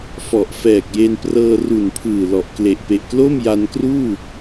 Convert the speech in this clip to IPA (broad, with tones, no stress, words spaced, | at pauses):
fɔ˨˩ʔfɛː˨˩k̚je˧n prɤː˧ru˨˩npʰɯː˨˩ lɔ˨˩ʔkle˨˩ʔ pe˨˩ʔklo˥˩mja˧nkruː˥˩